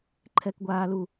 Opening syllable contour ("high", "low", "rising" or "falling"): high